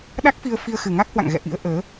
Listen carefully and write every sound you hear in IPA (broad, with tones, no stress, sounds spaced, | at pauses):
ɗ a˦˥ k̚ f i˧ ə̯ f i˧ ə̯ x ɨ˨˩ ŋ a˦˥ k̚ h w a̰˧˨ ŋ ɣ ɛ̰˧˨ ʔ ḭ˧˥ ə̯ ʔ əː˨˦